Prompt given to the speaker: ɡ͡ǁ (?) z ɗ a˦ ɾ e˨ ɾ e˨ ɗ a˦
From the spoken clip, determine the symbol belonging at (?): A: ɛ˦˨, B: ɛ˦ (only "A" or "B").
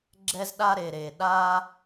B